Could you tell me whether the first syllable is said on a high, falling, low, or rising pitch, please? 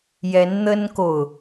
rising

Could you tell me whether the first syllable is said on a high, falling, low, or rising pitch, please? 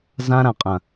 high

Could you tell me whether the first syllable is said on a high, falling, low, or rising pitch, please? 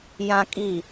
high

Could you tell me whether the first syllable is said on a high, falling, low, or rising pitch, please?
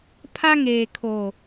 high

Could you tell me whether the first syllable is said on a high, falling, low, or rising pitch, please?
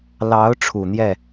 rising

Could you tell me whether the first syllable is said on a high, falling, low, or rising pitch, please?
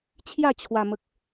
falling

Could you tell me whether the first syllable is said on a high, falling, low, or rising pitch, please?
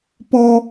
high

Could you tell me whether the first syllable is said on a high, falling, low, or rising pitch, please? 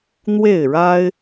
falling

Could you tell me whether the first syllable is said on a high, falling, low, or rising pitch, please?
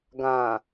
low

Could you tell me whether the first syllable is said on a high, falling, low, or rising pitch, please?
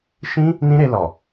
high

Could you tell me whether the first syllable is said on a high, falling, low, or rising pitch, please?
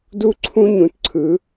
high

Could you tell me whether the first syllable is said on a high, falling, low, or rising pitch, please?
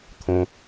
high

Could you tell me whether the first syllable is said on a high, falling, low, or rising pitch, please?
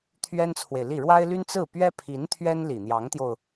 high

